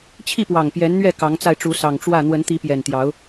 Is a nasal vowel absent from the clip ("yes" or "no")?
yes